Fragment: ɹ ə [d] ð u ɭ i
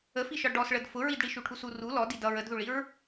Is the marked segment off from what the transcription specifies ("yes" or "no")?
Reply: no